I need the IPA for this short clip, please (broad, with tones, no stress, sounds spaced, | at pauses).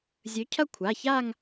zʲ ɵ˨˥ cʰ ɐ˥˧ kʷʰ a˩˧˩ ç a˥˧ ŋ